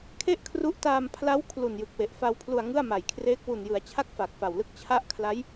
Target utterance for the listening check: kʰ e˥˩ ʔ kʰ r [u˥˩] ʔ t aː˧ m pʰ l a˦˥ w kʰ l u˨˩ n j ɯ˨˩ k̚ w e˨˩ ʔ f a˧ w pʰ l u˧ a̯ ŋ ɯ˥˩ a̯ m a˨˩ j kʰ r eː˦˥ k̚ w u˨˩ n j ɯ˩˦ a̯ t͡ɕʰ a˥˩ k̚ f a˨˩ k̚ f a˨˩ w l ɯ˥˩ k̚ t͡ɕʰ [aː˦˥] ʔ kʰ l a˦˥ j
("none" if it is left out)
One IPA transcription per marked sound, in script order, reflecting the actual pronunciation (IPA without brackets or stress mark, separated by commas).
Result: u˦˥, a˦˥